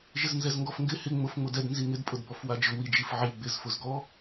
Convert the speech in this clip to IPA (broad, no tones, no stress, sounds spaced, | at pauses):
ʒ ɪ z n z ɛ z ŋ ɡ ɔ f ŋ ɡ ɪ h ɪ ŋ͡m ʊ f ŋ͡m ʊ d ɛ d n z i ŋ ɪ d pʼ ʊ d b ɔ f w a d͡ʒ ʊ w i d͡ʒ i f ʕ i ɡ͡b ɪ z f ʊ z ɡ ɔ